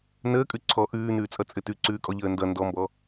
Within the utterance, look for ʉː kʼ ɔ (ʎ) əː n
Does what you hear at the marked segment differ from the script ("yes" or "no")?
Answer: no